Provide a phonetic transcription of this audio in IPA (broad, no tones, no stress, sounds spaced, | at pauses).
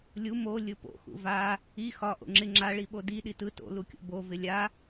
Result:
lʲ u m o lʲ ɯ p o̰ x ṵ v a | i x ɒ ʔ o̰ ŋ͡ǁ ɪ ŋ͡ǁ a ɭ i ɓ o d i ɗ i t ɯ t o̰ l u kʲ o̰ b o v ɪ lʲ a